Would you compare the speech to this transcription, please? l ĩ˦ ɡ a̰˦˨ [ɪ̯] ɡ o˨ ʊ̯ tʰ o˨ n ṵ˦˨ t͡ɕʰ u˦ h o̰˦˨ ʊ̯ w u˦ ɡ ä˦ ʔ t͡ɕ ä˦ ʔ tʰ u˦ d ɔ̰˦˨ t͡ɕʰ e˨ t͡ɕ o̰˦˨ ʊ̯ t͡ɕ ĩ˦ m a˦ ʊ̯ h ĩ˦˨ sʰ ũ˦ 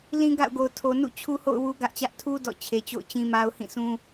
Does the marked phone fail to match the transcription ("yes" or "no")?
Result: yes